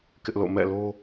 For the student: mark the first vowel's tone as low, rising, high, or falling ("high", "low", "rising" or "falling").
high